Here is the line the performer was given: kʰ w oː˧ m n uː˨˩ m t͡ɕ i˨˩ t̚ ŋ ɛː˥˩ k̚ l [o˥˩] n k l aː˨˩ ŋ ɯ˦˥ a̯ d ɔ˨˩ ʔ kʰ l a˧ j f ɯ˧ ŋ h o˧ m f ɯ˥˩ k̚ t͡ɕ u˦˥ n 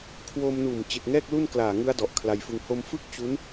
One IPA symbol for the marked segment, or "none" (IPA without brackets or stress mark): u˥˩